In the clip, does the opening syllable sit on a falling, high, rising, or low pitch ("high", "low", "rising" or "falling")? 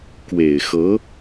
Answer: low